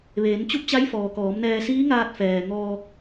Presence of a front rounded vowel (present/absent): absent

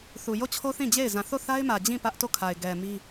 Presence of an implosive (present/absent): absent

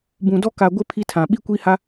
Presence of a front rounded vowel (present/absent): absent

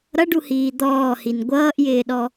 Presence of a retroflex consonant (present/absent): present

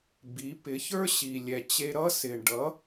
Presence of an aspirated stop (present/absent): absent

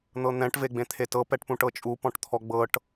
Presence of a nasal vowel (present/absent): present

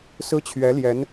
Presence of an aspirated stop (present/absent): present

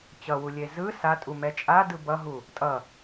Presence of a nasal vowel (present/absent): absent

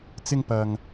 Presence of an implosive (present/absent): absent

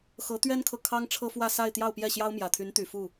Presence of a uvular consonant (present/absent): absent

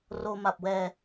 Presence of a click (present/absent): absent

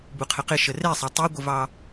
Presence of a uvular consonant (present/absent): present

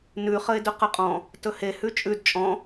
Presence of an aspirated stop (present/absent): absent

